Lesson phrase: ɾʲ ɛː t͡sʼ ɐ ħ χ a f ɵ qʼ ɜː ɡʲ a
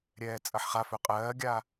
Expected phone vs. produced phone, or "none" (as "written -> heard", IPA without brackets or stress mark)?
none